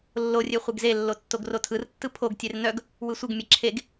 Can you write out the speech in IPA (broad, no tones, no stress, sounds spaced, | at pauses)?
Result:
lː o rʲ e χʷ e ɡ z e lː o tː o ɡ r o tʰ ɯ r tː ɯ pʰ o ɡ tʲ e r n œ ɡ | w ɯ sʷ ɯ ɡ mʲ e ǁʰ e ɡ